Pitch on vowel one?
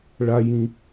high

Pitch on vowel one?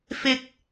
high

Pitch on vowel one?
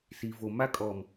low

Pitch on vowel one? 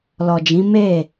low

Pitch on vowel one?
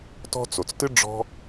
high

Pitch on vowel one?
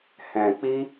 low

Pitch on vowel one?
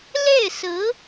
falling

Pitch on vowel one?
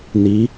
rising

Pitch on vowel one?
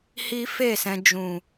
high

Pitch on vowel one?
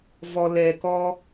low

